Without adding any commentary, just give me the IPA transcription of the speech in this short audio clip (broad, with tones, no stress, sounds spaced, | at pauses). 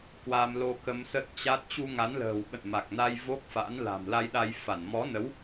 k w a˧ m l o˧ k ə˧ m s əː˦˥ t̚ t͡ɕ a˦˥ t̚ t͡ɕ u˧ ŋ a˨˦ n l ə̤ː˨˩ w ɓ ə̰˧˨ n m a˨˩ k̚ n a˧ j v o˦˥ k̚ f a̰˧˥ n l a̤˨˩ m l a˧ j ɗ a˧ j f a˧˩ n m ɔ˨˦ n ə˨˦ w